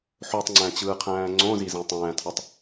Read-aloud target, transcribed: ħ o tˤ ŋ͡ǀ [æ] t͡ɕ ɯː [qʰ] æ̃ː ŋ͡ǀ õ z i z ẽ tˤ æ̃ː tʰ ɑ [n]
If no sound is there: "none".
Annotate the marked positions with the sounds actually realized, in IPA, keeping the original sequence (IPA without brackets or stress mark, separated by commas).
æ̃, qʰ, tˤ